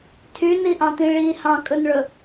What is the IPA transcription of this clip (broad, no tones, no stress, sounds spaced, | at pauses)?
tʰ y n i ʔ ɑ̃ t̪ ĩ ɭ i h ɑ̃ kʼ ɵ n ɭ ɵ